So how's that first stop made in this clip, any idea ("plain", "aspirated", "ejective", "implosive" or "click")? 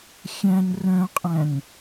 ejective